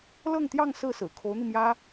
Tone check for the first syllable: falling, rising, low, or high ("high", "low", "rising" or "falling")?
falling